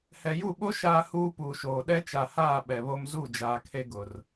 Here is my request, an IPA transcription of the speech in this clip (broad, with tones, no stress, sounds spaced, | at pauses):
h ɛ˨ j u˦˨ ɓ o˦ ʃ aː˦ h uː˦ p uː˨ ʃ oː˨ ɗ ɛ˦ t͡ʃ a˨ h aː˦˨ ɓ ɛ˨ β o˦ m z u˦˨ d͡ʒ aː˨ kʰ e˦ ɡ ʊ˨ r